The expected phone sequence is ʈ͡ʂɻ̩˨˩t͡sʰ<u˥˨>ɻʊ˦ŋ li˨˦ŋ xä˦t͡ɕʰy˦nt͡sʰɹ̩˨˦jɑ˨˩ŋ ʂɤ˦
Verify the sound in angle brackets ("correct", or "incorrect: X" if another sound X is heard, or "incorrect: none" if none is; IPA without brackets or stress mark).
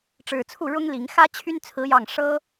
correct